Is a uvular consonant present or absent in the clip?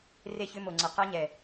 present